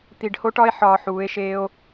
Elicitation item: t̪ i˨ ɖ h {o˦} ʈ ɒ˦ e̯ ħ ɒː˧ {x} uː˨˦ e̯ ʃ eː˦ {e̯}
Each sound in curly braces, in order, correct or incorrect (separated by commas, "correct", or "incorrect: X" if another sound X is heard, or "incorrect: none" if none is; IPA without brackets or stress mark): correct, incorrect: ħ, incorrect: o̯